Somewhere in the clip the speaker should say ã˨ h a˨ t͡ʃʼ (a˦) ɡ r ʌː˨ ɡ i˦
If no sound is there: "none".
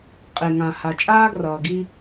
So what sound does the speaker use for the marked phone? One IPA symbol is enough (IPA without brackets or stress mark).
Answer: aː˦